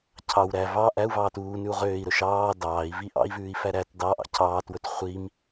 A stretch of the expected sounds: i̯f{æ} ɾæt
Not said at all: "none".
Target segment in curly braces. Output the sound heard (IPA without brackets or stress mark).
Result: æ